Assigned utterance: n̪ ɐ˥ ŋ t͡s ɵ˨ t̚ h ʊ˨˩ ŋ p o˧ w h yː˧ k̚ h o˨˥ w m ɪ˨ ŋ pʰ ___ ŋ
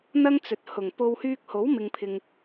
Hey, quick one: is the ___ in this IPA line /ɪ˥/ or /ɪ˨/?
ɪ˨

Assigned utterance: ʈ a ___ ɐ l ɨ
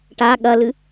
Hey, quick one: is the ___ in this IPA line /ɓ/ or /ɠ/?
ɠ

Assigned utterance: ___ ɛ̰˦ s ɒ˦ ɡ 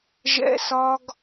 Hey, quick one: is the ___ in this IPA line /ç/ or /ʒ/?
ʒ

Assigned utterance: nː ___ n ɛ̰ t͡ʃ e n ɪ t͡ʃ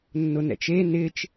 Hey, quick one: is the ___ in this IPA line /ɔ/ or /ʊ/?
ʊ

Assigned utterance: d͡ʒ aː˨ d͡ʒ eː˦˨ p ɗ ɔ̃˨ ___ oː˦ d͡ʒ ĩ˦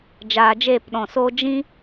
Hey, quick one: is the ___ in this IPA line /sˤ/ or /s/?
s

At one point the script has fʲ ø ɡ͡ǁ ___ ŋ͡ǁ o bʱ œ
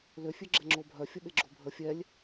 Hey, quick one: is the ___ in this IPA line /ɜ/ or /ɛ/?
ɛ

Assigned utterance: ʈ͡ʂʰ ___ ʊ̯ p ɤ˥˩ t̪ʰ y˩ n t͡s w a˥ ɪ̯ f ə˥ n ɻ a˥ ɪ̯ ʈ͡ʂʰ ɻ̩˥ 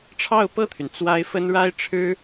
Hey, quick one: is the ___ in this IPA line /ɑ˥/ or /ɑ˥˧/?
ɑ˥˧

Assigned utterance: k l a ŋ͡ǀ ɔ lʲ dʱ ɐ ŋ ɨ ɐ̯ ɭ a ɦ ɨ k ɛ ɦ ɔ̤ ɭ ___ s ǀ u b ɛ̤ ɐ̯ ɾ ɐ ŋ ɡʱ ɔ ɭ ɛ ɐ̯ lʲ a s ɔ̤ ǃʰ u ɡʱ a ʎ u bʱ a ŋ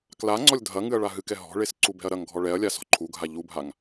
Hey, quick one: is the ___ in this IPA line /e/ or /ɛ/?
e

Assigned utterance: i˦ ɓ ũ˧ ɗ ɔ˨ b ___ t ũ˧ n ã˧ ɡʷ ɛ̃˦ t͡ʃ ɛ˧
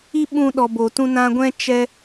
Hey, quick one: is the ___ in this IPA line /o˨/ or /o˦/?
o˨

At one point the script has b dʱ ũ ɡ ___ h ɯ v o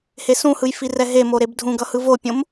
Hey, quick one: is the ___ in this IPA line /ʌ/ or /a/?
ʌ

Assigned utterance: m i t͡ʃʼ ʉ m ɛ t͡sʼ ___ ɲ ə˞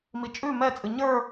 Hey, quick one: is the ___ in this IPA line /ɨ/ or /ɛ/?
ɨ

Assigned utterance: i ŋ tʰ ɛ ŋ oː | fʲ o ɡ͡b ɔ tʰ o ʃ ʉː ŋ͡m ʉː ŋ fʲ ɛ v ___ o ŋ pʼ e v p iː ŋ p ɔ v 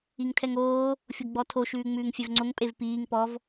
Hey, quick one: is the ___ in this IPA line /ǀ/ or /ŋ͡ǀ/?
ŋ͡ǀ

